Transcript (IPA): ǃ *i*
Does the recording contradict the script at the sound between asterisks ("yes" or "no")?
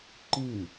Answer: yes